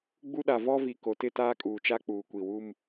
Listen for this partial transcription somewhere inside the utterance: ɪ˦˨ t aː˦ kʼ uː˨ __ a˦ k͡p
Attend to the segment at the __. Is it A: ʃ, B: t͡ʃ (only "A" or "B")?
B